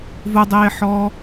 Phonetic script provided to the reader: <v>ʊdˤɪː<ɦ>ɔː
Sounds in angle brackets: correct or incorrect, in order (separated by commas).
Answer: correct, incorrect